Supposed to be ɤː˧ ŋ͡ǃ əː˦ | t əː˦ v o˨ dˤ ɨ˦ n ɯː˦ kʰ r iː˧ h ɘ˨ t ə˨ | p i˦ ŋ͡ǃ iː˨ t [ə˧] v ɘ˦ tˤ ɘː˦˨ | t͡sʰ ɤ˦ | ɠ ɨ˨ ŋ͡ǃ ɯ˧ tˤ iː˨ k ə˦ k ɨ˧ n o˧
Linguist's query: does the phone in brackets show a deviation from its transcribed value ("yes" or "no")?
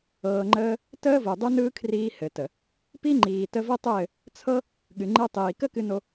no